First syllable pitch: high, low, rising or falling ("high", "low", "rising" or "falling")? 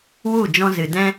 falling